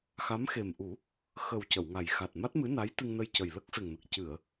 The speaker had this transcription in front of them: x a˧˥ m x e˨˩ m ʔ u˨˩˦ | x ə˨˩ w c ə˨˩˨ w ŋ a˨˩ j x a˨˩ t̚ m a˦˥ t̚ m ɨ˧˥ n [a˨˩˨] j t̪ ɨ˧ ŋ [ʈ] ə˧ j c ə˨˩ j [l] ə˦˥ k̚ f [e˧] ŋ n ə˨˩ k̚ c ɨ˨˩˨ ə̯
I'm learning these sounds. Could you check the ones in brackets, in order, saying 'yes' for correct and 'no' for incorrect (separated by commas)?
no, no, yes, no